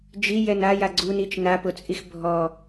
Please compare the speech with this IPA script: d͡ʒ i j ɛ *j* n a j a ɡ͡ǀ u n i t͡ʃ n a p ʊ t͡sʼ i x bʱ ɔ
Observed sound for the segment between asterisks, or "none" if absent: none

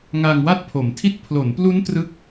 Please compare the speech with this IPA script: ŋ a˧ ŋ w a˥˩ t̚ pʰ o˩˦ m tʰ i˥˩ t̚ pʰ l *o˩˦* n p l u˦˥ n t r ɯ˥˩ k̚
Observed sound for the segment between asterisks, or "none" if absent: o˩˦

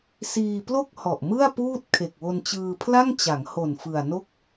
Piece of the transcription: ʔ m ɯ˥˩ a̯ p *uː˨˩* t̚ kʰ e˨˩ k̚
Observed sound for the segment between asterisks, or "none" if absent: uː˥˩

